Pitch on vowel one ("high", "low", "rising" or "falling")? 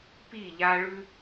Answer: falling